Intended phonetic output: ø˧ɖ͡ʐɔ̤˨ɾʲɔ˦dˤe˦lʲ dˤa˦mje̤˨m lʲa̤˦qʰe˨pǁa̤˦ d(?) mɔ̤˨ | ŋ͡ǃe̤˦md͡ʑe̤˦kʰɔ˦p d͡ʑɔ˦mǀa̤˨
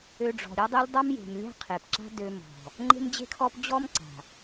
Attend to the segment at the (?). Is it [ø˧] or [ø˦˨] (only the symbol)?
ø˧